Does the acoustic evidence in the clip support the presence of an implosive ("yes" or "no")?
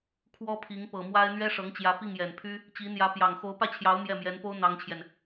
no